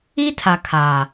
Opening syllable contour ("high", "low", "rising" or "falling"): high